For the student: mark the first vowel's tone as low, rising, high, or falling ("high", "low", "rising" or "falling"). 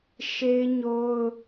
high